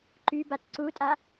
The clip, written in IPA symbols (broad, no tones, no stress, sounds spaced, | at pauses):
ǃ y b a t ǀ u tʼ a